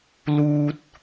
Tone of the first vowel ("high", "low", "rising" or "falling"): high